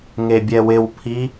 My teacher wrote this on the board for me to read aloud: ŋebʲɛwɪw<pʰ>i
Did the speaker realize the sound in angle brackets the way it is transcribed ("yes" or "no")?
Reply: yes